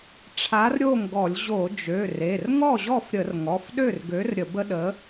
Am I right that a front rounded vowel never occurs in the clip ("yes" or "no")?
no